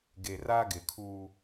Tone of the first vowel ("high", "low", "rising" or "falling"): low